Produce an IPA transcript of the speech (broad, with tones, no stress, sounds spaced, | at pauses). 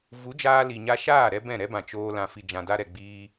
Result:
v u˨˦ d͡ʒ aː˧ l i˨ ɲ a˧ ʃ aː˦˨ ɾ ɛ˦ b ɛ̃˦˨ ɾ ɛ˦ b ã˨ t͡ʃ oː˧ l ã˨ f i˨ d͡ʒ ã˨ d a˧ ɾ ɛ˨ ɡ͡b iː˧